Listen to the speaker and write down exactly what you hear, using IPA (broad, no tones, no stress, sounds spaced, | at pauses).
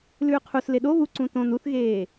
l ʉː qʰ u s l e ɗ o β u ǀ ũ t õ n u θ ɣ eː